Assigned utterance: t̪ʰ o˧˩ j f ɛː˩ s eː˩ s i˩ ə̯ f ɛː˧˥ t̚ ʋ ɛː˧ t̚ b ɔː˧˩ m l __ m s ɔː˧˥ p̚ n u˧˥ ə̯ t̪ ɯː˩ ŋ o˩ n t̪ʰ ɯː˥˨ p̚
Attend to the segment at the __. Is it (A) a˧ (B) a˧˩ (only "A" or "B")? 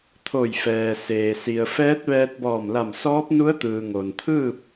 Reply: B